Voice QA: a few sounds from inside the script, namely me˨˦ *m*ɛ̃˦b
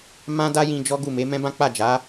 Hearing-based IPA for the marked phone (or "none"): m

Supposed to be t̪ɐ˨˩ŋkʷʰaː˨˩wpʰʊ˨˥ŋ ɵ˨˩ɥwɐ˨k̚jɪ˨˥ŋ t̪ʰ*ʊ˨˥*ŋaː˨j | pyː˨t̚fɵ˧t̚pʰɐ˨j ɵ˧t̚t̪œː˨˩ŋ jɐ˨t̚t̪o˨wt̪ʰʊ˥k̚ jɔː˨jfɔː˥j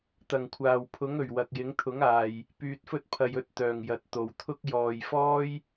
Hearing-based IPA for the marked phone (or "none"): ʊ˨˥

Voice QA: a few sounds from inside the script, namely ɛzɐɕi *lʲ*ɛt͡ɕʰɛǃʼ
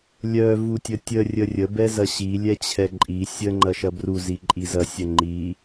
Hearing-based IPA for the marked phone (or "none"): lʲ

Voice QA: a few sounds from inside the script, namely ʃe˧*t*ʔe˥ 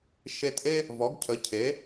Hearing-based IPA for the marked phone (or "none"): t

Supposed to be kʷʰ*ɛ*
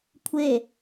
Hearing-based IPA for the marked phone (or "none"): e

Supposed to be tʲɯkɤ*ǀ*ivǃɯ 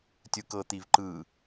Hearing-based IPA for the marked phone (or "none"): t̪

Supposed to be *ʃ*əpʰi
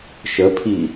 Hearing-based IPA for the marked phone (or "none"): ʃ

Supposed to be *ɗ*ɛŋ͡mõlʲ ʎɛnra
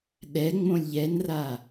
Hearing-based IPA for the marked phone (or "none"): ɗ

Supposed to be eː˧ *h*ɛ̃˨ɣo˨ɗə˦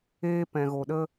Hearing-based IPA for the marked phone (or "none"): p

